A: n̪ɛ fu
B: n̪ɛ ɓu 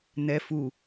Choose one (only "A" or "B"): A